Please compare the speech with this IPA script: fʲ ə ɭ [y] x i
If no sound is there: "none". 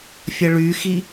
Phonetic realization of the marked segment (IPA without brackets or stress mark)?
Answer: y